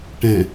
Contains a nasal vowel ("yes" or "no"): yes